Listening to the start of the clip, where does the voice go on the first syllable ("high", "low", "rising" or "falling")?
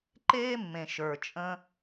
high